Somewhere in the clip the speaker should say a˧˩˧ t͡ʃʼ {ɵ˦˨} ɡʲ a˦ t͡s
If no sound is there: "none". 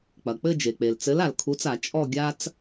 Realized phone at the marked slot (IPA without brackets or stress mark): ɔ˦˨